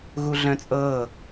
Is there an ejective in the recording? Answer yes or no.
yes